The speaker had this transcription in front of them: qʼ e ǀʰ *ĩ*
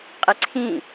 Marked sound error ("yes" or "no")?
no